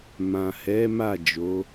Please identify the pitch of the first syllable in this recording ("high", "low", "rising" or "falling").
low